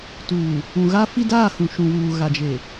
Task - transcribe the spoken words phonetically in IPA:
t uː˨ | ũ˨ ɣ a˦ f i˦ d aː˦˨ h ũ˨ ʃ ũ˨ w uː˨ ɣ a˨ d͡ʒ e˨

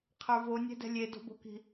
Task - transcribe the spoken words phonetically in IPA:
qʰ ə˞ v o nʲ ɛ̤ d ɛ̤ lʲ e d o̤ b o̤ k i̤

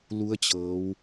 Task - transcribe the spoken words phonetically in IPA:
l u˧˥ ə̯ t͡ɕ ɤː˩˧ w

